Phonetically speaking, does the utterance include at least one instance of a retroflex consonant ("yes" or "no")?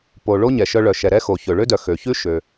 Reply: yes